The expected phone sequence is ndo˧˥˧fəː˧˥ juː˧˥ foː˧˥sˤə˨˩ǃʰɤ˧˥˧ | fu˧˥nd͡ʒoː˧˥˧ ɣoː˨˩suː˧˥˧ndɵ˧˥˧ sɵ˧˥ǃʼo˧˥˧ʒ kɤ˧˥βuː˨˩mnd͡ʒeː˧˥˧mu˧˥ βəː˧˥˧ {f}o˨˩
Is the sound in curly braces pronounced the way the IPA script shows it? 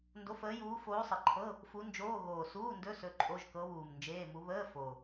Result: yes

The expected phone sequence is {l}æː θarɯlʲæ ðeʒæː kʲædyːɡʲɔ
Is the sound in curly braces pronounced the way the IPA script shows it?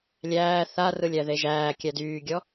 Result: no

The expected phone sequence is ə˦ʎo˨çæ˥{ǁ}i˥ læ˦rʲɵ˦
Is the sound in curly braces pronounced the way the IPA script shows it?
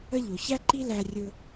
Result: no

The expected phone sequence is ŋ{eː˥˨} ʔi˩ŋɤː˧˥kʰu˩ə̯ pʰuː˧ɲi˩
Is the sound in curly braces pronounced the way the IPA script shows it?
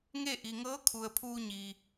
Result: no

